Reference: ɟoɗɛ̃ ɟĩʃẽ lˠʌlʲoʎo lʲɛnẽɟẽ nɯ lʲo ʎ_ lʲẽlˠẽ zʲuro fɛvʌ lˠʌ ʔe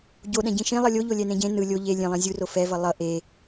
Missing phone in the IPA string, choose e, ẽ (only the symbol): e